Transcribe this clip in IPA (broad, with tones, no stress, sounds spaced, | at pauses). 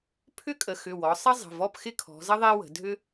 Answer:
pʰ ʏ˥ kʼ ə˩˧ x ʏ˩˧˩ w ɔ˩˧ sˤ ə˥ zˤ ə̤˩˧˩ v ɔ˥˧ p x ɪ˥ kʰ ɔ̤˩˧ z ə˥ ðˤ e˥ w ə̤˩˧ dʱ ʏ˥